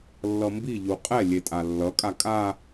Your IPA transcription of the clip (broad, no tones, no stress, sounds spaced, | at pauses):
lː ʌ m b i ʎ u qʼ ɛ lʲ e tʼ a lː ʌ kʼ a kʼ a